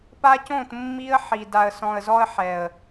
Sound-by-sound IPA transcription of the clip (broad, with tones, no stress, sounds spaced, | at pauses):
p a˦ c õ˦˨ t mː i˦ ə̯ ħ i˨ d a˨ ə̯ s ɔ̃˨ ə̯ z ɔ˦ ə̯ ħ ɛ˨ ə̯